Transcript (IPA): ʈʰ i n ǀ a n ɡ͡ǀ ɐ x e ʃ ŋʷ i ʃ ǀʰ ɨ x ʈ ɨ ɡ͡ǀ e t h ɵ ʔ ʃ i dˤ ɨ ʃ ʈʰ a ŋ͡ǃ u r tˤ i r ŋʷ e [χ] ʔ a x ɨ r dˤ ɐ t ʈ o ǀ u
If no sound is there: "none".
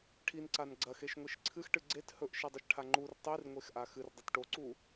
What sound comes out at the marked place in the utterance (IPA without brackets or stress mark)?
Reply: x